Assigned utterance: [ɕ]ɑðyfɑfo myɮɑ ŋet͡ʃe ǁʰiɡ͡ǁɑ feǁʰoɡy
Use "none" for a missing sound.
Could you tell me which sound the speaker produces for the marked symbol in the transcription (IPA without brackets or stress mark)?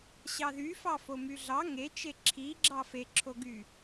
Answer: ɕ